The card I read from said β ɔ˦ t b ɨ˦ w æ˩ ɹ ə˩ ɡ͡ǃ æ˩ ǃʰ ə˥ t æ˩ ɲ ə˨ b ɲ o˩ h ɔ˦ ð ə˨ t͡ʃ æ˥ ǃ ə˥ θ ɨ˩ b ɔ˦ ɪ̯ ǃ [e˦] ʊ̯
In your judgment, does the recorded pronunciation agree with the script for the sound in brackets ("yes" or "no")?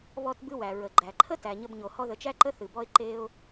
yes